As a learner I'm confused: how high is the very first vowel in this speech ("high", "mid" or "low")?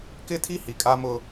high